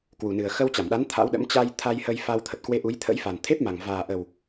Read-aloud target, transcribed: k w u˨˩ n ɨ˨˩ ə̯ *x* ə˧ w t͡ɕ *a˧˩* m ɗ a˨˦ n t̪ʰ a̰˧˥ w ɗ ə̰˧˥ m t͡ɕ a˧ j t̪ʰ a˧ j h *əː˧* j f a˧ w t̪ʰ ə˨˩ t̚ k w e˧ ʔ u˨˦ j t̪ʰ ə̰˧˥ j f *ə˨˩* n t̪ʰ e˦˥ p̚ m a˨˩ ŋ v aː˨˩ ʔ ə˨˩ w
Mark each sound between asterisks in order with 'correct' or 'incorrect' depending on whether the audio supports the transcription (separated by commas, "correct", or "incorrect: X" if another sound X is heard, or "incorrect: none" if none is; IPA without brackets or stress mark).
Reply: correct, correct, incorrect: ə˧, incorrect: a˨˩